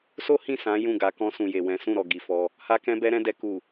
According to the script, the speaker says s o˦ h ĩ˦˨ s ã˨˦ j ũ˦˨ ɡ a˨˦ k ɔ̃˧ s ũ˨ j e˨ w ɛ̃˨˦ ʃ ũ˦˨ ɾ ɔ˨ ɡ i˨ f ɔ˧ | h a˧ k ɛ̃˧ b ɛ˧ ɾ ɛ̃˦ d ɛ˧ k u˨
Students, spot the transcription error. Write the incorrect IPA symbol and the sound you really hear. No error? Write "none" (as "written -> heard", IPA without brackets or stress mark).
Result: ʃ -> s